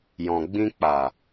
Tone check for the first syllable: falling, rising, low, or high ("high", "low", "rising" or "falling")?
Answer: low